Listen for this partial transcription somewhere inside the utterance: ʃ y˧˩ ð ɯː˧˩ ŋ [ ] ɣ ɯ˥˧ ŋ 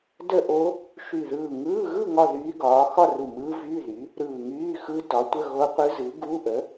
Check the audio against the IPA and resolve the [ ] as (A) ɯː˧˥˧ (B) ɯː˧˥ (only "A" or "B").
A